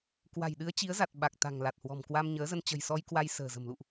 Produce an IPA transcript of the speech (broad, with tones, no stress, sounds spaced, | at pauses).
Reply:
k w a̤˨˩ j ɗ ɨ˨˦ ə̯ t͡ɕ i˨˦ ə̯ z a˨˩ t̚ ɓ a˨˩ k̚ t̪ a̤˨˩ ŋ l a˨˩ t̚ h w ɔ̤˨˩ m k w a˧ m ɲ əː˨˦ z ə˧ n t͡ɕ ə̤˨˩ j s ɔ˧ j k w a˧ j s ə̤ː˨˩ z ə̤˨˩ m l ṵ˧˨ ʔ